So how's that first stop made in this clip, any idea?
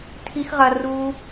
aspirated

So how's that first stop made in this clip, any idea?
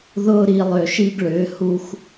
plain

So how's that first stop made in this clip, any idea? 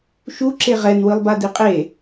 click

